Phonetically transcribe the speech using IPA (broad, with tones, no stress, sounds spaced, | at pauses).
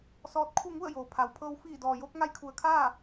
s ɔː˧˥ t̚ kʰ u˥˨ ŋ u˥˨ ə̯ j oː˩ pʰ a˩ w pʰ ɤː˧ w f iː˧˩ d ɔː˩ j o˧ k̚ ŋ a˧˥ j kʰ u˩ ə̯ kʰ aː˥˨